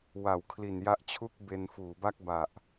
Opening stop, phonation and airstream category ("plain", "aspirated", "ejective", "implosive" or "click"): aspirated